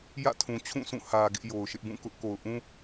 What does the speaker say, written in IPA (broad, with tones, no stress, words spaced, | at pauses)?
jä̰˦˨tʰũ˨t͡ɕʰũ˦˨sʰũ˦˨ hä˨ ɡɪ˦ʔjo˨ʊ̯ʃɪ˦ʔ bũ˦˨kʊ˦ʔ ko˨ʊ̯ʔũ˦